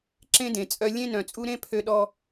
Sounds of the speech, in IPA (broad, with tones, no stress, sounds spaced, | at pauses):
ǁ ẽ˦ d ẽ˨ t͡sʼ œ˦ lʲ ẽ˦ n œ̃˨ t͡sʼ u˦ ɾ ẽ˦ pʰ ø˦ ɗ ɔ˦